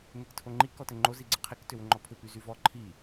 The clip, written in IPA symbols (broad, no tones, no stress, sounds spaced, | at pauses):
n e k tʰ o ŋ͡ǃ i k ɔ t ɘ ŋ͡ǃ o z i ɡ͡ǀ ɘ qʰ i k t ʏ w ʏ ŋ͡ǃ ɔ pʰ ʏ p y z y v ɔ ǃʰ i